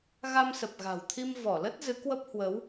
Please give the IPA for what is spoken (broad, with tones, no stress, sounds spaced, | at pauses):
ɣ a˧ m s ə˨˩ p̚ ɣ a̤˨˩ w t̪ʰ i˧ m v ɔ˧˩ l ə˦˥ t̚ z ɨ˨˦ k w ə˦˥ p̚ h w ə˨˦ w